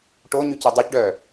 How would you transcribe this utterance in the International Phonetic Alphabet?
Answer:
ʈoɲyci dˤycɖœː

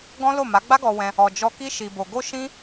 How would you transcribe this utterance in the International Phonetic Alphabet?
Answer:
ɡɔ̃˦lo˦˨ma˨˦ ɡ͡ba˦ɡɔ˧wɛ̃˧ | ɔ˧ d͡ʒɔ˧ ki˦ʃi˧bo˧ ɡo˦ʃĩ˦

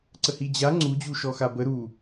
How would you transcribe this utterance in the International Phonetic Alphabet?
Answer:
ǀəhid͡ʑa ŋ͡ǀu d͡ʑuʃɔxabə ɾu

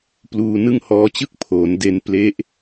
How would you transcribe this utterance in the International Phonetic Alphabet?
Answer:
pluː˧nɯ˥˩ŋhɔː˦˥t͡ɕɯ˥˩k̚ pʰoː˩˦n de˧n ple˦˥ʔ

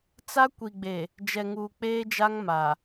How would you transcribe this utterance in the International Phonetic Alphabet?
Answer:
t͡sa˦ kʷi˨ɡ͡be˨ | d͡ʒɛ˨ŋuː˨k͡peː˦d͡ʒa˦ŋ ma˨

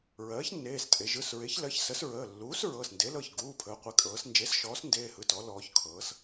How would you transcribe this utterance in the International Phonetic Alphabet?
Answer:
ɹɜː˩˥çnːeː˩˧˩stʼe˩˧ ʒɯ˩˧˩sɹe˩˥ç lɜ˩˥çsə˩˥s ɹəː˩˧˩ lːuː˩˥s ɹɤ˩˧˩snde˩˥lɤ˩˧˩ç ɡuː˩˧˩pʰəː˩˧ qʷe˩˧kʼɤː˩˧s nd͡ʒe˩˥sʃɔː˩˥s ndeː˩˧˩hɯ˩˧˩tɔ˩˧ lɔː˩˧ç kʰɤː˩˧s

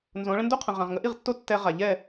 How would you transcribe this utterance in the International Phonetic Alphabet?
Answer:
nzõ˨˦ɭə̃˦ ndo˦qʰə̃˨ ʁã˨ʁŋə˦ʔi˦˨ʁtːo˦ tːɛ˧ ʁa˨ʎɛ˦˨

